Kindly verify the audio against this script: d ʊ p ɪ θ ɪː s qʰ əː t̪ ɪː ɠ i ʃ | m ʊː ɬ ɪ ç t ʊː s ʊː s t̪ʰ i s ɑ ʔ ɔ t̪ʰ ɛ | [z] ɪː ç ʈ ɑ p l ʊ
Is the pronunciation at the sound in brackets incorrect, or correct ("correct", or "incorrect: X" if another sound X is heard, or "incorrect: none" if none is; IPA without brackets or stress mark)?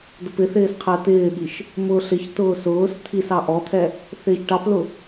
incorrect: θ